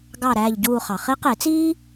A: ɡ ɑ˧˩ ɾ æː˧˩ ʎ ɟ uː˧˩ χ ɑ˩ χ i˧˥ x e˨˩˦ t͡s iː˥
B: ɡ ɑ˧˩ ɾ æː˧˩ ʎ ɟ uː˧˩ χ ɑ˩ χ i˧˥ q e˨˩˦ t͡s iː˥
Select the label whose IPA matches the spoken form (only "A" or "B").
B